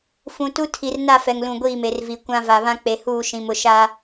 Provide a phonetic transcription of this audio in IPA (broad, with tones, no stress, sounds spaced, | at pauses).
f ũ˨ t u˦ tʰ i˨ r n a˦˨ f ɛ˨ ŋ l ũ˨ ɡʷ iː˦˨ m e˨ r v i˨˦ kʷ ã˦ v a˨ β ã˦ k͡p e˨ h uː˦˨ ʃ ĩ˨ m ʊ˨ ʃ a˦